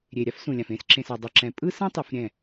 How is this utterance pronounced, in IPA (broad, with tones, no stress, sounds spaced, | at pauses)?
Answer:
ɾʲ e˨ ɾʲ a˦ f s ũ˨ lʲ ã˨ f ẽ˦ s ǁ ẽ˨ s a˨ dˤ ɛ˨ ǁ ɛ̃˨ pʼ ɯ˦ s ɛ̃˦ tˤ u˨ f ɾʲ ɛ̃˦˨